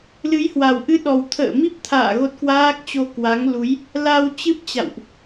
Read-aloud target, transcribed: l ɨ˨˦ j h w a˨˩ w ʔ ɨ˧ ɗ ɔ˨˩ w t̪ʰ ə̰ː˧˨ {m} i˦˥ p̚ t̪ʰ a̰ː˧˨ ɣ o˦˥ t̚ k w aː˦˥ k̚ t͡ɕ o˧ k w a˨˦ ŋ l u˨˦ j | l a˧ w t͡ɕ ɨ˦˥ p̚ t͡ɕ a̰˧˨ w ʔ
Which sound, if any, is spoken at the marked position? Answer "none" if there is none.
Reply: m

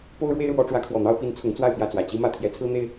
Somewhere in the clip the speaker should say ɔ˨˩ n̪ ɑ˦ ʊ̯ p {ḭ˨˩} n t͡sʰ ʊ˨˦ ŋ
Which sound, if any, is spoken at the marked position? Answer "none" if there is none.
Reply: i˨˦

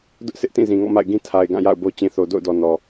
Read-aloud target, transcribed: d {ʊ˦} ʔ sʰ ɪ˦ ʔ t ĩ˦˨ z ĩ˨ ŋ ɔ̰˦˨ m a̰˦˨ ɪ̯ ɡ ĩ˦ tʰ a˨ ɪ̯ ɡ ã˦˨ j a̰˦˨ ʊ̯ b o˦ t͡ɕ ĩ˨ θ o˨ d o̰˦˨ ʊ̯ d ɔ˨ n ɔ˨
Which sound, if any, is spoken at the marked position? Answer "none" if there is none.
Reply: ʊ˦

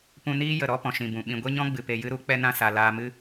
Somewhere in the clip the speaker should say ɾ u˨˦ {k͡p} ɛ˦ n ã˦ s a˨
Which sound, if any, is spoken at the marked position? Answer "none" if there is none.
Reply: k͡p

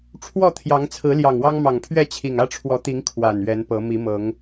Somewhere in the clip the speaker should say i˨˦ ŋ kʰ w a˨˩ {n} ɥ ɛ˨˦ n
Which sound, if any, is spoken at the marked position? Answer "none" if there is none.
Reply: n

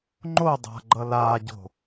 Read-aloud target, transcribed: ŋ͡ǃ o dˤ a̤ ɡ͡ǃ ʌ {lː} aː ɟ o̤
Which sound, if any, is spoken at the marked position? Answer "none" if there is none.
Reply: l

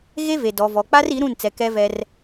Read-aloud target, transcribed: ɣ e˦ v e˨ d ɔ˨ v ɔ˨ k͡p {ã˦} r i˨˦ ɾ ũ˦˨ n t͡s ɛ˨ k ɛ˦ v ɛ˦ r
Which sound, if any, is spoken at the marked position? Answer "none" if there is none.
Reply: a˦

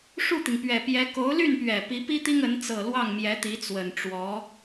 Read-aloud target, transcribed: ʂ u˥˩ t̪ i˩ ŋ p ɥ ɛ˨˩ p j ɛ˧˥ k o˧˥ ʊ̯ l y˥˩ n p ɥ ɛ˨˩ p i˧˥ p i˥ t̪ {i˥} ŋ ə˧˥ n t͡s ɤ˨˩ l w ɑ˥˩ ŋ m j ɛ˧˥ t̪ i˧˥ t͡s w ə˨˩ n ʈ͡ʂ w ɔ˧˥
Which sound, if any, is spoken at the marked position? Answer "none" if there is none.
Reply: i˥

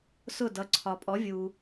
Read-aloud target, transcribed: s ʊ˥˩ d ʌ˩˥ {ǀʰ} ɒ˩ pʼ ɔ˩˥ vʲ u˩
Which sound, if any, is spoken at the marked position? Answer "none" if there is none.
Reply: ǀʰ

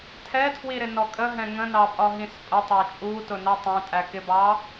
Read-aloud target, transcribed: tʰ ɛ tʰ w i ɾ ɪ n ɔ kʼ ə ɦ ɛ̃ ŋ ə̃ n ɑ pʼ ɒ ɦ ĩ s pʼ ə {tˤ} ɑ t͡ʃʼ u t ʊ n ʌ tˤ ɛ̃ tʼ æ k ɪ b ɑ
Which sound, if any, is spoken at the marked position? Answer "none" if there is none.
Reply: tˤ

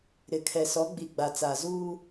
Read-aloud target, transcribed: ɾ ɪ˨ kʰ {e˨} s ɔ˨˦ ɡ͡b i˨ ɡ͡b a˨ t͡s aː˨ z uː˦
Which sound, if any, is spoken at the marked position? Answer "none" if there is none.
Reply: ɛ˨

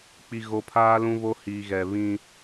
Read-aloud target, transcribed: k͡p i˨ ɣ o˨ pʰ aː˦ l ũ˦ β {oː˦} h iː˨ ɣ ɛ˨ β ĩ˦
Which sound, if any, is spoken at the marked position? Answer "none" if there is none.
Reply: o˦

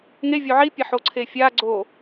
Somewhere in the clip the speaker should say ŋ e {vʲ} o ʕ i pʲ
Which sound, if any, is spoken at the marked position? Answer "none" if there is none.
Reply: vʲ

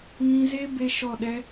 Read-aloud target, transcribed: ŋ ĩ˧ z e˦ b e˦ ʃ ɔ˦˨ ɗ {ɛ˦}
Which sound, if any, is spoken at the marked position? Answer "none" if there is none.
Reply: ɛ˦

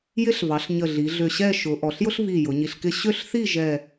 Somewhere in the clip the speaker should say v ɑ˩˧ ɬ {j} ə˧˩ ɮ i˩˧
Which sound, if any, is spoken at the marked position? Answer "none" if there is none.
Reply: ɲ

